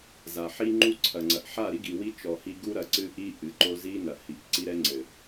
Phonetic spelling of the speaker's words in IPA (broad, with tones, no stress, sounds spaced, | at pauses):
z a˨ ħ i˦ ŋ͡ǃ u˦ ǀʰ ɐ˨ ŋ͡ǀ ɐ˨ ʔ ħ a˦˨ ɾ i˦ ɡ i˨ w i˦ t͡ʃ ɔ˨ h i˦ ɡ u˦ ɾ ɐ˨ ǀ ɨ˦ ʔ i˦ ʔ ɨ˨ ǃ o˦ z i˦ n ɐ˨ h i˨ ʔ ǀ i˦ ɾ ɛ˦ ŋ͡ǀ ɘ˨